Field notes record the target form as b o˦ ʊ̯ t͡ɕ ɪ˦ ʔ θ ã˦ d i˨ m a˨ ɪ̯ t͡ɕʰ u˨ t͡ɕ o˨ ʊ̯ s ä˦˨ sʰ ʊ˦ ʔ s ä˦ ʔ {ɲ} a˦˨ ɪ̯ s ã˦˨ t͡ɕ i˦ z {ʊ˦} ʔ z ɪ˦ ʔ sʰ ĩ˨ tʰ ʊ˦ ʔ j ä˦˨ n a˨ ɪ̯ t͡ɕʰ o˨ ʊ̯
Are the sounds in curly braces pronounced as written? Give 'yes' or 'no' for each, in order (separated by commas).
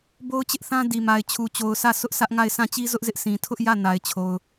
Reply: no, yes